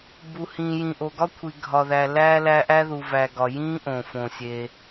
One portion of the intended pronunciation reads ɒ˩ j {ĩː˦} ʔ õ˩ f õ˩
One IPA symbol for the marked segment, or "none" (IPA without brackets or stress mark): ĩː˦